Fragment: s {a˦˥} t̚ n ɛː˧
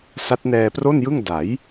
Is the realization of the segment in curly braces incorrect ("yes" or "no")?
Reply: no